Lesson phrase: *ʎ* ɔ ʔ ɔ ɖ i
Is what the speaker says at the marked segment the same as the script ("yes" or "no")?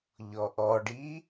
yes